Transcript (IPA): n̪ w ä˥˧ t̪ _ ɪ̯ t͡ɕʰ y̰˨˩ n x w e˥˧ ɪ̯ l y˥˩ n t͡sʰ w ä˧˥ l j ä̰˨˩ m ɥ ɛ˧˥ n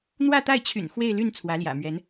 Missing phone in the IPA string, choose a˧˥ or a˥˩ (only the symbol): a˥˩